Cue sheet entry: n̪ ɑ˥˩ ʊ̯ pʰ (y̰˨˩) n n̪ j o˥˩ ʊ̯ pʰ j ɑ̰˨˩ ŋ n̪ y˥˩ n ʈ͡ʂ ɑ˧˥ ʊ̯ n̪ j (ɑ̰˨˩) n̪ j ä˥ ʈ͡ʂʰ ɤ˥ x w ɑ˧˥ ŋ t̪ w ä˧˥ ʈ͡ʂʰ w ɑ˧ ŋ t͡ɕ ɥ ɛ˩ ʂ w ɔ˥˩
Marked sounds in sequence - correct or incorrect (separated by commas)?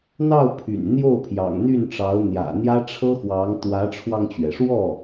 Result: correct, incorrect